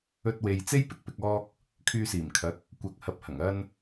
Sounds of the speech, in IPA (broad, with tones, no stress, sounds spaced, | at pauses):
ɵ˧ t̚ w e˨ j t͡s e˥ j p ɪ˥ k̚ p ɪ˨ k̚ ɔː˧ k̚ | kʰ yː˧ s iː˨˩ m kʰ ɐ˨˥ k̚ | kʷ ɐ˨ k̚ h ɐ˨ p̚ h ɐ˨˩ ŋ ɐ˧ n